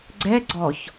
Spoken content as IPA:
ɡ͡ǀ ɛ ɡ͡ǀ ɔ ç

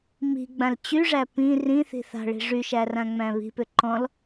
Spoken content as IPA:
m i̤ ɡ͡b ã l t͡ɕ y ʐ æ p ĩ r ĩ θ i̤ θ a̤ ɭ i̤ ʐ y ʃ æ r ã ŋ͡m æ̃ β i̤ p ʏ ǃ ɔ̃ l

